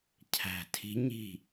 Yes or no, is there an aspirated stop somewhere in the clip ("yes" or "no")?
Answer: yes